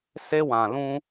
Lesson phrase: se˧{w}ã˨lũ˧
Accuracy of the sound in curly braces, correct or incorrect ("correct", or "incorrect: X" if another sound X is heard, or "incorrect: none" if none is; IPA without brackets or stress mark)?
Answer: correct